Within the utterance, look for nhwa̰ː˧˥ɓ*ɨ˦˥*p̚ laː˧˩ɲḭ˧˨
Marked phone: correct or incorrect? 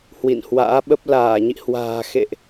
incorrect